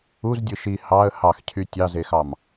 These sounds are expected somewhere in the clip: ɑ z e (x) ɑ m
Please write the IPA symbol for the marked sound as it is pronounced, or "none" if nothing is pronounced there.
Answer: x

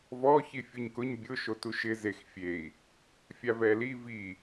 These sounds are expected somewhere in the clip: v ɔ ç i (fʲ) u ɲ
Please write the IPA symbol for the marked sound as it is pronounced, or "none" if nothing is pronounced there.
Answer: fʲ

